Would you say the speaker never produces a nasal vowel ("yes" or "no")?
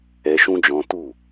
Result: no